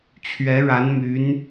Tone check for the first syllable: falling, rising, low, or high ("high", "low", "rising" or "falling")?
rising